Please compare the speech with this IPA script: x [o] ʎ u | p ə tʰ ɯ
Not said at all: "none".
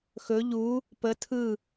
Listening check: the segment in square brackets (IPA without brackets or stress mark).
ɵ